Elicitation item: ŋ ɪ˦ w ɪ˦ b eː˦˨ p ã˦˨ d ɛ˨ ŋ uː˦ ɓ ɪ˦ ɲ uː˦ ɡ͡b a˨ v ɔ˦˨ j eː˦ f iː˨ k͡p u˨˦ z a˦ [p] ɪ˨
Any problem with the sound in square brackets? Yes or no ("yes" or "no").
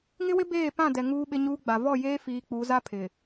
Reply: yes